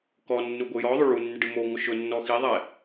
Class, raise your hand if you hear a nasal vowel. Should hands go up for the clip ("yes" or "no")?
no